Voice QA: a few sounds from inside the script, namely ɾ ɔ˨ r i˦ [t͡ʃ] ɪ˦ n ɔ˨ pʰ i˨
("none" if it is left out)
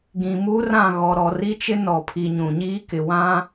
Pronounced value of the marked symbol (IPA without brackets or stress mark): t͡ʃ